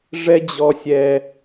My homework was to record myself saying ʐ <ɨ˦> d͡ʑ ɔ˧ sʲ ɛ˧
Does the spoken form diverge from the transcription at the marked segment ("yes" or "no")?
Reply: yes